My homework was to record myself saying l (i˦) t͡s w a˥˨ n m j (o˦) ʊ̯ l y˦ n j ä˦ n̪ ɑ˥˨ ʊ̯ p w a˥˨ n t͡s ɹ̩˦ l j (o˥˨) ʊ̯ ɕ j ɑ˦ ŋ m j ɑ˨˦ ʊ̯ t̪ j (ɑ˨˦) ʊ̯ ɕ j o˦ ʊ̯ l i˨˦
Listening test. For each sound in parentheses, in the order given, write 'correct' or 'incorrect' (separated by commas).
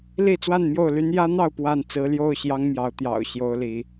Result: incorrect, incorrect, correct, incorrect